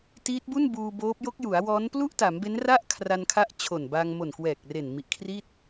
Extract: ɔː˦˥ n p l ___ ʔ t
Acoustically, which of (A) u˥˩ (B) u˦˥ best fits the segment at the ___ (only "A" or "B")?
A